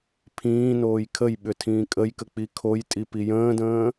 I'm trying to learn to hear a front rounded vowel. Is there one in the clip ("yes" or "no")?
yes